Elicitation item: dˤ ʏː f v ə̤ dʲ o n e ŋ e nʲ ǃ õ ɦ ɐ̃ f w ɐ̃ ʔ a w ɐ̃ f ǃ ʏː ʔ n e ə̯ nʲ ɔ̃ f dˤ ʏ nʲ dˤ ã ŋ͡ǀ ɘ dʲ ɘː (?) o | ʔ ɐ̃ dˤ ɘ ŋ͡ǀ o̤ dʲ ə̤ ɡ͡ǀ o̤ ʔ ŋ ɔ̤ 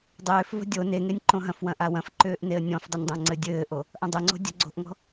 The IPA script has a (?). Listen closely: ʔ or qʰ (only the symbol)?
ʔ